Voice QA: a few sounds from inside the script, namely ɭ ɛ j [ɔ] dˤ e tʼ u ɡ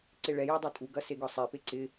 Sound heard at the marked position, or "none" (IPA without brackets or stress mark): ɔ